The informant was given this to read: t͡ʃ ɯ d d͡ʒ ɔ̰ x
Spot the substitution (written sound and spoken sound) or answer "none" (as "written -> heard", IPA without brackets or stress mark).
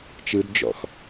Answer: none